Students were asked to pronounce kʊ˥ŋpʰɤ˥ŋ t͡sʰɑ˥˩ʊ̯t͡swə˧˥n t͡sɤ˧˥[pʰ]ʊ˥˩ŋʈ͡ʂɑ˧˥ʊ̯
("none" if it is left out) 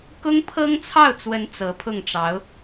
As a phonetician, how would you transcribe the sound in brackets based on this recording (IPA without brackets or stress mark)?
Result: pʰ